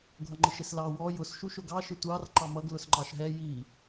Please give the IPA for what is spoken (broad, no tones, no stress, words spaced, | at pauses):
ɡʱʌŋ͡ǃɪʃɪslɑ wɔ jʊs ʃuʃʊɡɑ ʃɪtʷɑr ǃɑmʌɡ lʊsŋ͡ǃɑʃɦɛ ji